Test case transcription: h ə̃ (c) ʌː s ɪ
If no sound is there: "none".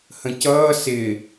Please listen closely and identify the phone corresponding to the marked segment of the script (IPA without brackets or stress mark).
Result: c